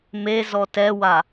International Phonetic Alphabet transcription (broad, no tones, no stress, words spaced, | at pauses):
mezɔ tɛwa